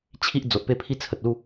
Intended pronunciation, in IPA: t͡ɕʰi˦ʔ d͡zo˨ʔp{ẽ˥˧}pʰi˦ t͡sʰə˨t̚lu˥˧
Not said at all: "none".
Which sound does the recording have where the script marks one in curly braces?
e˥˧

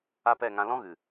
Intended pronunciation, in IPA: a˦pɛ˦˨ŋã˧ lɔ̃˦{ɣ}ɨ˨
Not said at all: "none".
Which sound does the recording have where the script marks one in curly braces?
ɣ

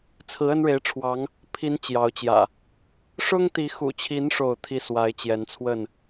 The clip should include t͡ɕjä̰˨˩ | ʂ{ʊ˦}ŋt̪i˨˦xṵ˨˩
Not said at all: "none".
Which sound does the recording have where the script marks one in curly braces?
ʊ˦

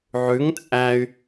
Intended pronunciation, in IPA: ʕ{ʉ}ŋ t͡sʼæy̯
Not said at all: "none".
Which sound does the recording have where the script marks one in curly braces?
ʉ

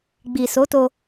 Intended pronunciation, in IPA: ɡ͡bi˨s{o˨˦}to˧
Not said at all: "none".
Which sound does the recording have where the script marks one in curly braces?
o˨˦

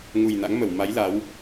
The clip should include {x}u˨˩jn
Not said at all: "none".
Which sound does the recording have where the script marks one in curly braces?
ŋ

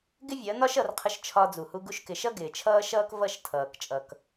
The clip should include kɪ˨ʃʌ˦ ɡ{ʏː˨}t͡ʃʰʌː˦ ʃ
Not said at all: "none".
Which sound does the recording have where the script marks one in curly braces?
ɪː˨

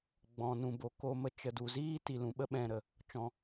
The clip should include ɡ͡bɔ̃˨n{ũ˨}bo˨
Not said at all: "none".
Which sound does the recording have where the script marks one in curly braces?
ũ˨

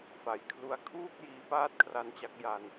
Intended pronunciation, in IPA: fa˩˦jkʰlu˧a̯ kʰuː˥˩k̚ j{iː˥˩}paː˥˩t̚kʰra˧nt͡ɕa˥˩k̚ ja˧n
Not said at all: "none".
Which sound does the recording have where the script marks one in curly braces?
iː˦˥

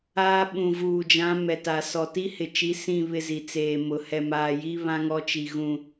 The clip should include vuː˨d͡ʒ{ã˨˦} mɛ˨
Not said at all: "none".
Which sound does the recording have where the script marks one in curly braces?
ã˨˦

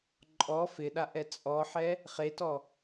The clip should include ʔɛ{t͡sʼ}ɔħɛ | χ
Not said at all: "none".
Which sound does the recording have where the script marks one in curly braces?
t͡sʼ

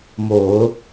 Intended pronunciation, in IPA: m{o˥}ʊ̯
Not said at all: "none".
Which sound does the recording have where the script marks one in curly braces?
o˨˩˦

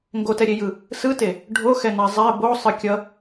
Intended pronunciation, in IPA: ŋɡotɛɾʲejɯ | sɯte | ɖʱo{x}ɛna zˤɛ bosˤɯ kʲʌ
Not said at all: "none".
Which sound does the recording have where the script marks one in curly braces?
x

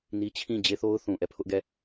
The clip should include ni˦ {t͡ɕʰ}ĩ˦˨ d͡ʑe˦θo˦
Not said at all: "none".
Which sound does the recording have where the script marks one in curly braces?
t͡ɕʰ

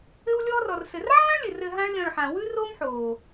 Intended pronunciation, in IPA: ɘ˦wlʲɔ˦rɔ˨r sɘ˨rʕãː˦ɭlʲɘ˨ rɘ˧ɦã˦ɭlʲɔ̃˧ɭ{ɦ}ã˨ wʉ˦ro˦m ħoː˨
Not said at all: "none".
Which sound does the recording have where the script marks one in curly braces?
ħ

